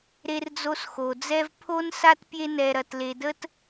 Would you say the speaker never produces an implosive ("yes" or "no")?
yes